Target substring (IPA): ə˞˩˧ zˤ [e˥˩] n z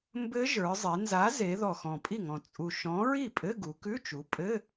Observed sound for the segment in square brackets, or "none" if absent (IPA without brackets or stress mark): e˩˧